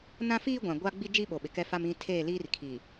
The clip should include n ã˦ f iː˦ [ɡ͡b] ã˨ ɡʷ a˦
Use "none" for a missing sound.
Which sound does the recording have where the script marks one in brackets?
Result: ɡʷ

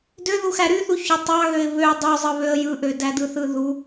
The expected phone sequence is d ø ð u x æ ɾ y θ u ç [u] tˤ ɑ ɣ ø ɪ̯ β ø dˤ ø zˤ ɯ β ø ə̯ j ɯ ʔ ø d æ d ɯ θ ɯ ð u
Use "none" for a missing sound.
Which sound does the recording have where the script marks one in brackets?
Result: o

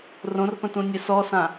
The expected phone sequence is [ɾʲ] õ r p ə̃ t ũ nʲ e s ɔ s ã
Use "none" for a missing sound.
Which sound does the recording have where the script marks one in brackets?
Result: r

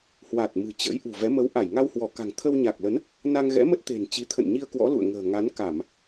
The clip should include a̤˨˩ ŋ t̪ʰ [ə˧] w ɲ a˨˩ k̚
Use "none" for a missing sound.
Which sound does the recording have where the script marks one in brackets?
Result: ə˧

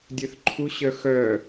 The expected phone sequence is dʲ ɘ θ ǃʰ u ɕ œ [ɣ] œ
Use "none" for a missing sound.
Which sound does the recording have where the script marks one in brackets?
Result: x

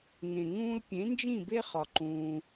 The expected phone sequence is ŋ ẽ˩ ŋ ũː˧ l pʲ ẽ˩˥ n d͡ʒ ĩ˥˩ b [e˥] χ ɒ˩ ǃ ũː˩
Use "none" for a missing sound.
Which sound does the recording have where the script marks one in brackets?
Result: e˥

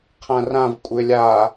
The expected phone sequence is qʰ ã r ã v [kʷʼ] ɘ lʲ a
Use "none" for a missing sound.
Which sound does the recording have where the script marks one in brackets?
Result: kʷʼ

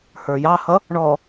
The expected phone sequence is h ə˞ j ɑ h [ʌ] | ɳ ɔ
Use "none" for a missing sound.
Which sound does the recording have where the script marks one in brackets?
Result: ʌ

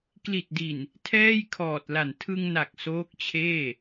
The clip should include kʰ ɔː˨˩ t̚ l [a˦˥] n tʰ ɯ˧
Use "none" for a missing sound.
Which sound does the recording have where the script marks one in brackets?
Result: a˨˩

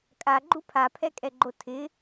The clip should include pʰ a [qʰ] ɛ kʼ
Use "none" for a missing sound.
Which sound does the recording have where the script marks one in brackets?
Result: pʰ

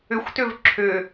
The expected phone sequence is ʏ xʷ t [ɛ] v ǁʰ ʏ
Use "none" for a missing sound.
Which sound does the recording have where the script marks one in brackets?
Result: ʏ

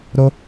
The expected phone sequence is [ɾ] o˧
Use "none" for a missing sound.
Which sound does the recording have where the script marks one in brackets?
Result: ɾ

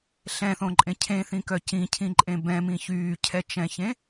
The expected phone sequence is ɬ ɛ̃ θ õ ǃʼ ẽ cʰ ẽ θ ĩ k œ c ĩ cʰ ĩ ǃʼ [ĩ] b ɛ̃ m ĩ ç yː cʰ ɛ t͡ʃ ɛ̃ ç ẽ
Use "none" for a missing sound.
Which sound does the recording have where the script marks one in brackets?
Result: ẽ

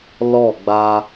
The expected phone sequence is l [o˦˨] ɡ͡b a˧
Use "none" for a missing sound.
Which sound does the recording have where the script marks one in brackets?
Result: ɔ˦˨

